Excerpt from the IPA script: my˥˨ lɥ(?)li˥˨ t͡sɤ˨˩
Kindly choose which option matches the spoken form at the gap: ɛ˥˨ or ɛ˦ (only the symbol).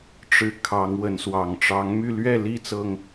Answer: ɛ˥˨